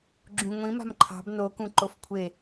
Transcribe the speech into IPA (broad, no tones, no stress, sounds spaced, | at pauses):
ɡ͡ǁ ũ ŋʷ ĩ m a̤ m ǃʰ ɑ̤ b n o k ũ ǃ o f kʷʰ e